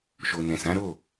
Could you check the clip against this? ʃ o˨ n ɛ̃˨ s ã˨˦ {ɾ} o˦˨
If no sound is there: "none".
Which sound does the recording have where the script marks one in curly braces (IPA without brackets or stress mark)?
ɾ